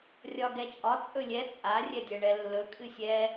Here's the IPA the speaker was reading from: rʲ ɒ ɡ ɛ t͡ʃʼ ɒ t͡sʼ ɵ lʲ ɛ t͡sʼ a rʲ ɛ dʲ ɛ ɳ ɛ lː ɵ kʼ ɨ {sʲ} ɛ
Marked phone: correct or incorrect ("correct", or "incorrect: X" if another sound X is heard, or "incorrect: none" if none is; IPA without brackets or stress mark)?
correct